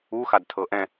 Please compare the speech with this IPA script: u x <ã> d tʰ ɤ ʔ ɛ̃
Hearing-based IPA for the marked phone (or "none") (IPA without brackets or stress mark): a